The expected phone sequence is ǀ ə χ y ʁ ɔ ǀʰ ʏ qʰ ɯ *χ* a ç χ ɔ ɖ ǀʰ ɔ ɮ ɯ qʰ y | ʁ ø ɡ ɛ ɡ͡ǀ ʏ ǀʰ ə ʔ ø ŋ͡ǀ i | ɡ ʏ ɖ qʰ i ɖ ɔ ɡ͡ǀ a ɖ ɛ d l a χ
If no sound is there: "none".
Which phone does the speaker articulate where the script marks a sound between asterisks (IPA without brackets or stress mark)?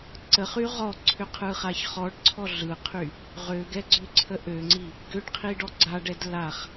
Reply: χ